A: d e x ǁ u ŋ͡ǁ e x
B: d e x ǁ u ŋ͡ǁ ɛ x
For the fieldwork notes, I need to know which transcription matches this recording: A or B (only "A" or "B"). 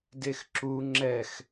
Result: B